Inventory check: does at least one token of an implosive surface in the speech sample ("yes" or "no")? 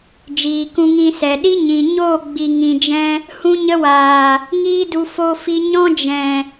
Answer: yes